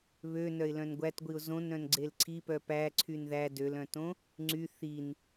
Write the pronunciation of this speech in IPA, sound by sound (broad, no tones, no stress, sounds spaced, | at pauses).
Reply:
β ø n œ ɪ̯ l œ̃ n ɡʷ æ t ɡʷ i ʊ̯ z õ n ɾ œ̃ n ɡ͡ǀ e l ǀʰ i p œ p æ ǀʰ y n ð æ d ø l œ̃ t õ | ŋ͡ǀ y θ i n